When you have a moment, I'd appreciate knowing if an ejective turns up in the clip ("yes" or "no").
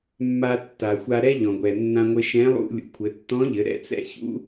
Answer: no